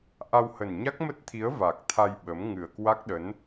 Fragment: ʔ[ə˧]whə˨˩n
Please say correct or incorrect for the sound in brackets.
incorrect